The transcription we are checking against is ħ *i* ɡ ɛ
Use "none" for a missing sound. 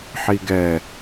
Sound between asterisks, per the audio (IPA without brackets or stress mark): i